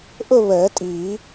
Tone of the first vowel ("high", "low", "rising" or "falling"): falling